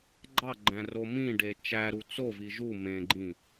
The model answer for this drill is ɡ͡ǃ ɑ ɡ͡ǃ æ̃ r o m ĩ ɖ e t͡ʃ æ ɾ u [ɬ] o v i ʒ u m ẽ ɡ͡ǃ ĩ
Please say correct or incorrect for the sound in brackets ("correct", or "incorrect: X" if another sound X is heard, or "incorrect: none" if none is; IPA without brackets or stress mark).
incorrect: t͡s